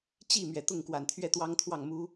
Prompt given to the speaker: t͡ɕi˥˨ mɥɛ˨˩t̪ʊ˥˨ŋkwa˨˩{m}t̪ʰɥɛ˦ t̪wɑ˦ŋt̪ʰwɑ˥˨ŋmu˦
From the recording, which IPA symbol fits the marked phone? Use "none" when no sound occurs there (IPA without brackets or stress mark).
n